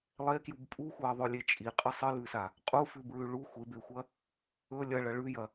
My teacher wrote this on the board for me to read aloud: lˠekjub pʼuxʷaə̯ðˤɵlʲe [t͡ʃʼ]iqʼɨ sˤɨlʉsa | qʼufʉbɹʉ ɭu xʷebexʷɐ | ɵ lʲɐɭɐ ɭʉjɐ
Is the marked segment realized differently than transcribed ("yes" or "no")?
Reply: no